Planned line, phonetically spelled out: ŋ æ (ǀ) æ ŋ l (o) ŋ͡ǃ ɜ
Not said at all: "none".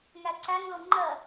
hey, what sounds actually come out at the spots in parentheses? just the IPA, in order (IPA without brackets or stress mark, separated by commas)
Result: ǀ, o